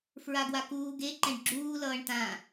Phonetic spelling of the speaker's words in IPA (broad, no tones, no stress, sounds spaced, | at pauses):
f ɹ a ɡ w a k uː ɡ e ǃ ɛ̃ ɖ ɡ͡ǁ uː l ʌː ɳ t ã